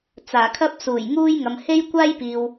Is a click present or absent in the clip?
absent